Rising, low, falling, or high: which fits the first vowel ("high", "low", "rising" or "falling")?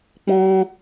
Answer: high